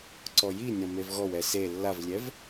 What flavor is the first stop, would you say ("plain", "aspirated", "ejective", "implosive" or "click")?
click